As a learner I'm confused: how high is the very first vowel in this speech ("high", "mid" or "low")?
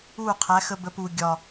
high